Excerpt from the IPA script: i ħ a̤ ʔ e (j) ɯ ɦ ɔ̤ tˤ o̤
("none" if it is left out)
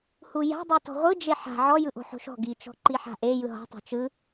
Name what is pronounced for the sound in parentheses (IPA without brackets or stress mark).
j